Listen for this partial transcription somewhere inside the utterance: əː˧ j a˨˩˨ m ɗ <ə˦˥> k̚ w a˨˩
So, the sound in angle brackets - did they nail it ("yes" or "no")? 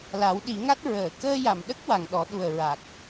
yes